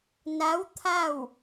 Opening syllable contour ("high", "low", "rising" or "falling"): rising